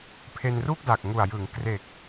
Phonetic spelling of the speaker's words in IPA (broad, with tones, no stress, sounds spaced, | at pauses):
pʰ e˧ n r u˥˩ k̚ d a˨˩ k̚ ŋ u˨˩ a̯ j ɯ˩˦ ŋ k r e˨˩ k̚